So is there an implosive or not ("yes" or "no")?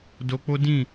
no